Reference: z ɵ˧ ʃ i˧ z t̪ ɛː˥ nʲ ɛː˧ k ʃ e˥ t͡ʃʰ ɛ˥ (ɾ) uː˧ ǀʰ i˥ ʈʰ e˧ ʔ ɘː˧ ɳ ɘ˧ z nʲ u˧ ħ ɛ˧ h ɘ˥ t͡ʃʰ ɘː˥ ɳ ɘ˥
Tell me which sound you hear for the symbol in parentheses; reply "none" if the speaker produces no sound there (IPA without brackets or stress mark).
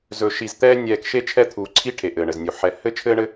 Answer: t̪ʰ